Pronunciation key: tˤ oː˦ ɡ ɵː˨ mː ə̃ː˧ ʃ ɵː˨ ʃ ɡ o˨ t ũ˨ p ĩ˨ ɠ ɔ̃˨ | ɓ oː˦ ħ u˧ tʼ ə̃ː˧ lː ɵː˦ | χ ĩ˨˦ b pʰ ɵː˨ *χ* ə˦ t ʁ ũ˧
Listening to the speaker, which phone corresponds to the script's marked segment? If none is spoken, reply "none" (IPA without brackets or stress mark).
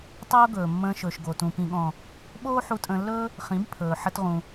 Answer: ħ